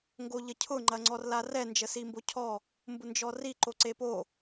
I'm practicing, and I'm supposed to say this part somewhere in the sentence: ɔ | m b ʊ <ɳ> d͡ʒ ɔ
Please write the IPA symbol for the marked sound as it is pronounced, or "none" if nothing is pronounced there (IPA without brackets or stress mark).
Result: n